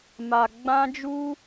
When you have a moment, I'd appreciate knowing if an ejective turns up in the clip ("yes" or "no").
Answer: no